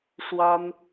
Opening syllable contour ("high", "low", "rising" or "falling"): high